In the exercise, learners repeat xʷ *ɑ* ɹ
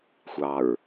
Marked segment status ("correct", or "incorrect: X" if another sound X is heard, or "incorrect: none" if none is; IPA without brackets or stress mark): correct